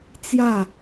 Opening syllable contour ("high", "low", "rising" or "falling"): falling